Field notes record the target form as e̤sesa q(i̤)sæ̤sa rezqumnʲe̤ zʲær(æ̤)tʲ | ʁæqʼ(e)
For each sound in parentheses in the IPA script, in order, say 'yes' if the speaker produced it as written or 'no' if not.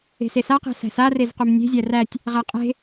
no, no, no

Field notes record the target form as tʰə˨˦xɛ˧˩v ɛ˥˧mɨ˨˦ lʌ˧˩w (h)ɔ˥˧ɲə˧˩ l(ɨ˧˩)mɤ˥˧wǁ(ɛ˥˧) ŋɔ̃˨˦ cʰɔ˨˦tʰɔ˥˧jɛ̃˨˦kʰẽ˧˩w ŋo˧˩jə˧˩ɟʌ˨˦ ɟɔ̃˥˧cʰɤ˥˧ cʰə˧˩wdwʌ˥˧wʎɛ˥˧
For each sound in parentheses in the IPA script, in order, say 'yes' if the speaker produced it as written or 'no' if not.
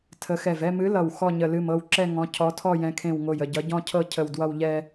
no, yes, yes

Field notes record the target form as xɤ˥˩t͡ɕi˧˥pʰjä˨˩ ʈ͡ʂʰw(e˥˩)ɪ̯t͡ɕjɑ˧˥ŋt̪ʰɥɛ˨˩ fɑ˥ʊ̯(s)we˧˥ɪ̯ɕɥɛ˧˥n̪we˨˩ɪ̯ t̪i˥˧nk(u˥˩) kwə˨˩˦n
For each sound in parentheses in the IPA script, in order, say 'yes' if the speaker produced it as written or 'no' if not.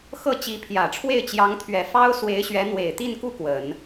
yes, yes, yes

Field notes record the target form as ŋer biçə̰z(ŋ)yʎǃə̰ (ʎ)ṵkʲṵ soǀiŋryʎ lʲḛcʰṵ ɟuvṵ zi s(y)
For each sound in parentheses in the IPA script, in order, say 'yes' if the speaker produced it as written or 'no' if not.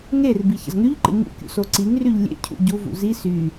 yes, no, yes

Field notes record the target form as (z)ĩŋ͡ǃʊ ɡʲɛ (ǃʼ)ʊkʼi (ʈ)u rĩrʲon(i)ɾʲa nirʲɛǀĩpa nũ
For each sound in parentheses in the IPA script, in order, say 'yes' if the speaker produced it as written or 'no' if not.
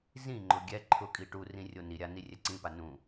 yes, no, yes, yes

